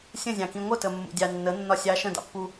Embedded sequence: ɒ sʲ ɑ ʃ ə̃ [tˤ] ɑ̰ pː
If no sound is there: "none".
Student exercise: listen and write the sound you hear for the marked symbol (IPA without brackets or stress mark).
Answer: d